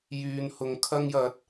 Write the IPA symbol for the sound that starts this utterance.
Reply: j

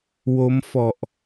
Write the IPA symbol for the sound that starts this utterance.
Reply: w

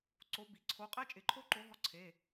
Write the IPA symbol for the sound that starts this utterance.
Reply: ǀ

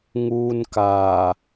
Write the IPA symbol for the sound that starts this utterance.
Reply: ŋ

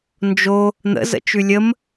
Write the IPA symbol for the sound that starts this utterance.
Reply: n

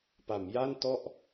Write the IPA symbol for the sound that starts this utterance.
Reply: p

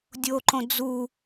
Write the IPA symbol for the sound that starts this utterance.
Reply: dʲ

